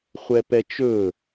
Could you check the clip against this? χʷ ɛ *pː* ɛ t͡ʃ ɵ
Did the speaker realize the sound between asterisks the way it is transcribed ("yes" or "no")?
no